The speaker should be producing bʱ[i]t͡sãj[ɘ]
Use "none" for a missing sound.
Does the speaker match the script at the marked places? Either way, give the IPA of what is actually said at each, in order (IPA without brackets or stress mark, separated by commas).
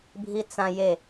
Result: i, e